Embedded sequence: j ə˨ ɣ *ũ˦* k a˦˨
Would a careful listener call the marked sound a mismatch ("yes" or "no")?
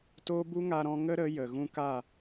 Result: yes